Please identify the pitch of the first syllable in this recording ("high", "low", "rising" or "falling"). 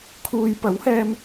low